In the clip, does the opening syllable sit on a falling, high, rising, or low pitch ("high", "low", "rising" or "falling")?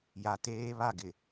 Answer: low